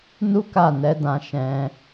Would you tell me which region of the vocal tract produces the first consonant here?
tongue tip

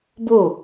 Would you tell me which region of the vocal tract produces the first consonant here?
lips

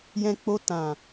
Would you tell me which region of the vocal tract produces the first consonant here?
palate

